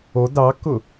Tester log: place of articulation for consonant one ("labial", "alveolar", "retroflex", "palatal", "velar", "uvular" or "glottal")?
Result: alveolar